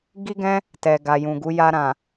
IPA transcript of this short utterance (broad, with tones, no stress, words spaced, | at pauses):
ɡi˦ɡɛ̃˦ | tɛ˨ ɡa˨jũ˨ɡu˨˦ ja˧ɾã˨